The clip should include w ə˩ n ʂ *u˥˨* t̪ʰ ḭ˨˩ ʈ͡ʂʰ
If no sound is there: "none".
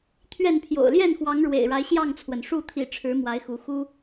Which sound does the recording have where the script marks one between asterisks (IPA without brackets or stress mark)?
u˥˨